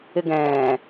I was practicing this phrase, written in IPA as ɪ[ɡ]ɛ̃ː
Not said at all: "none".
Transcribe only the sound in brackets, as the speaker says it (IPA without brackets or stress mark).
ɡ